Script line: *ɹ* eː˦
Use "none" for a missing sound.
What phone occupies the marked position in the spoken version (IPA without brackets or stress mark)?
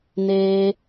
n